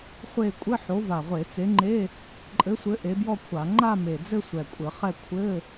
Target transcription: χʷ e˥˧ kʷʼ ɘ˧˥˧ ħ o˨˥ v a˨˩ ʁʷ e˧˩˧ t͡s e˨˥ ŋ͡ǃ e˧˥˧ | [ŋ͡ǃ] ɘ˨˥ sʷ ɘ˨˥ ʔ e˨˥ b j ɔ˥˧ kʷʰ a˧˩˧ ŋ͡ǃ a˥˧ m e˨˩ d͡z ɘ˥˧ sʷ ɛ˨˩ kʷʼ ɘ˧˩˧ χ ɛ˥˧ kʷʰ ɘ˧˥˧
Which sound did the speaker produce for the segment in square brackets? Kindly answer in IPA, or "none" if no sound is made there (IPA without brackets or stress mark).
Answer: ǃʼ